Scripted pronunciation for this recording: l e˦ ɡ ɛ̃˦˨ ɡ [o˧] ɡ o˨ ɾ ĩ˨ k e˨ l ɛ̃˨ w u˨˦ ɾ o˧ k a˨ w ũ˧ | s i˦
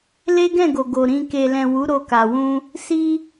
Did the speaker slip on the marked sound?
yes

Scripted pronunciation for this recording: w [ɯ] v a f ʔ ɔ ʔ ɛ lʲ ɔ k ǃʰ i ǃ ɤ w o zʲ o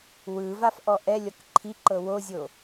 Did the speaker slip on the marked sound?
no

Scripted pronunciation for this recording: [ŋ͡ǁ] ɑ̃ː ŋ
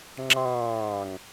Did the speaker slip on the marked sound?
no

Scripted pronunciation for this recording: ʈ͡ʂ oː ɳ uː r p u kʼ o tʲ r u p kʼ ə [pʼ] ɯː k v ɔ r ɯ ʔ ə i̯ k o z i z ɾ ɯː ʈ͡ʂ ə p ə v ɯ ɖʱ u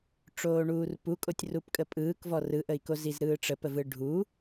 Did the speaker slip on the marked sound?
no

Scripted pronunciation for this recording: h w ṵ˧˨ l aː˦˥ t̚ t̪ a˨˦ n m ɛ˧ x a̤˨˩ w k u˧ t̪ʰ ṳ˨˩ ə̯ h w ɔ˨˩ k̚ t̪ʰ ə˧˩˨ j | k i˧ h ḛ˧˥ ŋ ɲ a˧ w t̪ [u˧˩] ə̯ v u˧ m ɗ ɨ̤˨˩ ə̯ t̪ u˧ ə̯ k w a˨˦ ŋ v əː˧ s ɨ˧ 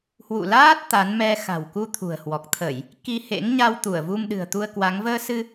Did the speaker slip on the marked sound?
no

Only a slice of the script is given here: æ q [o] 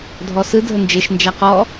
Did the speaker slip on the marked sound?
yes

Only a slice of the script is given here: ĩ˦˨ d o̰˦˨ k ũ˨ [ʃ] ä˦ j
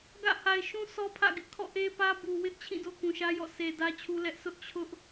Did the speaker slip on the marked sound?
no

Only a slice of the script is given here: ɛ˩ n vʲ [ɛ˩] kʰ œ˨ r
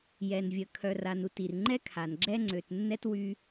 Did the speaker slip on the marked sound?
yes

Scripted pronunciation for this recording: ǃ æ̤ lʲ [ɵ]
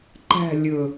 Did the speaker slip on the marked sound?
no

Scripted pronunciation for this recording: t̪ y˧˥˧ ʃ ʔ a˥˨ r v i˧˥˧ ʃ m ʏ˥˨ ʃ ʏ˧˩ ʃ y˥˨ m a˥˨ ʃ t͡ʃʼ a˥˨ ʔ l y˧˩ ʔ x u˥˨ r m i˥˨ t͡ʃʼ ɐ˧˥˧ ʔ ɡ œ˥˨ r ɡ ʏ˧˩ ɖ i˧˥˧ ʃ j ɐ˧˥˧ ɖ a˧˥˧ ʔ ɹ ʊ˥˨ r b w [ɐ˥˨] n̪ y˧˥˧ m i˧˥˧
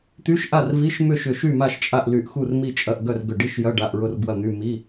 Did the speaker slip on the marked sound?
no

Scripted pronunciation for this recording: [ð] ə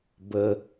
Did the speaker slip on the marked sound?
yes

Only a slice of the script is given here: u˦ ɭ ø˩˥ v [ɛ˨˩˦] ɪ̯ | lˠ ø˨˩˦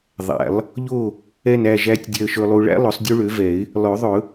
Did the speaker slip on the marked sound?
no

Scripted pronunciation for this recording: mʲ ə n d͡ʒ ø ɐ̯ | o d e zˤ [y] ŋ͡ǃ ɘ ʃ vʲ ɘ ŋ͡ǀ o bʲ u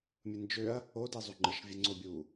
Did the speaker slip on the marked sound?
yes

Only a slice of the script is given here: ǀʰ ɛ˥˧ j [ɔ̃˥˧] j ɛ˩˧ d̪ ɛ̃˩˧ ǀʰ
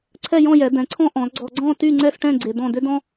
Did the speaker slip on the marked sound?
no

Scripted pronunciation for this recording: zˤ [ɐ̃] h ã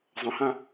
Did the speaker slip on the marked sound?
no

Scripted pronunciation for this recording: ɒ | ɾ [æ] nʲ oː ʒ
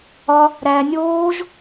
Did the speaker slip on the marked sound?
no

